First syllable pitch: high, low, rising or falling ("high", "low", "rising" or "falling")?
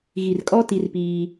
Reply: low